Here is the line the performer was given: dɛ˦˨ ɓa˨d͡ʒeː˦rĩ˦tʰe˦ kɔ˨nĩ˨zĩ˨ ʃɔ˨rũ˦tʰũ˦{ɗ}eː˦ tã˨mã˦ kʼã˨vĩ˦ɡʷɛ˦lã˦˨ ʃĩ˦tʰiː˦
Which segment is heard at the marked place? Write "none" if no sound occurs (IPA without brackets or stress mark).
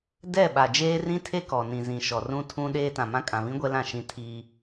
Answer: ɗ